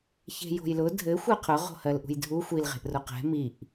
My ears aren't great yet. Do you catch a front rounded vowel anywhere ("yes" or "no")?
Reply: no